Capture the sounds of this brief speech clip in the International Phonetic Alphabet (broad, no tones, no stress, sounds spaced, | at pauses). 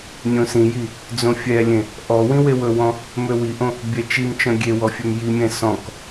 nʲ õ s ĩ j i | d͡z õ fʲ ɛ lʲ ẽ | ʔ ɔ w ĩ w e w ɵ w ɔ̃ | m ø w i ʔ õ | bʲ ɛ t͡ʃ i m t͡ʃ ɔ̃ ɡʲ e w ɔ fʲ ø m j i mʲ ɛ̃ s ɔ̃ k